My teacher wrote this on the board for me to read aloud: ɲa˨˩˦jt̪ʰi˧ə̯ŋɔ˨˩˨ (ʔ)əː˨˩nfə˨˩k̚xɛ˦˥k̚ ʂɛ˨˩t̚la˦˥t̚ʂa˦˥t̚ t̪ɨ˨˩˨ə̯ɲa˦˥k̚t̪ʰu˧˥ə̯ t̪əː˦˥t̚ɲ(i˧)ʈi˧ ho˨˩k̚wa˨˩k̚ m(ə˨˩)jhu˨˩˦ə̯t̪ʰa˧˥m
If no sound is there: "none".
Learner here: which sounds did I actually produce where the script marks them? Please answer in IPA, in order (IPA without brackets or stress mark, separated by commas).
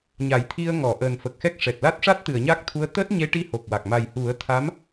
ʔ, e˧, a˨˩